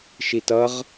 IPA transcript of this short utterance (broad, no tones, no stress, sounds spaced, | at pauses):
ʃ i t ʌ ʁ